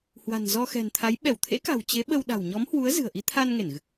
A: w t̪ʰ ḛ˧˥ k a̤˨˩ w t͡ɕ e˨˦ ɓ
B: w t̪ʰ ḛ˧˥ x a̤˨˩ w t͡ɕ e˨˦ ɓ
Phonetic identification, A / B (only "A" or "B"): A